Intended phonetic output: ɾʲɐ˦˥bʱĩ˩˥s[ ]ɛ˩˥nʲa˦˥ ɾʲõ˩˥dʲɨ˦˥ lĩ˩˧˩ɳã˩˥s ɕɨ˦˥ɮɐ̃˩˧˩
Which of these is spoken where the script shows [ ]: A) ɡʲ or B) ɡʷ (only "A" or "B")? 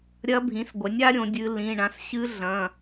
B